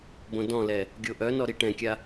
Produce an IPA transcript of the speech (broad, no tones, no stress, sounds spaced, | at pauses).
b õ d ɔ̃ l ɛ | ɡʲ o ʔ œ n ɔ ɾ i ʈ ɛ̃ kʲ a